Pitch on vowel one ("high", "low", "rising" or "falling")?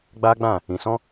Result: high